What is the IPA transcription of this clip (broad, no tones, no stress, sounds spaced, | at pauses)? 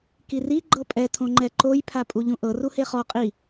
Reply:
k i r i ɡ͡ǃ ɤ pʼ ɛ tʰ õ ŋ͡ǃ ɛ ǃ o j pʰ a pʼ u ʎ ũ ʔ ɤ r u h e χ ɔ qʼ i